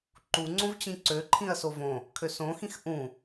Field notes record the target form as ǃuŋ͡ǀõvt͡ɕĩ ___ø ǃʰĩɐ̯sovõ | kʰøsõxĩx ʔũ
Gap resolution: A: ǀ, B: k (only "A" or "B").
A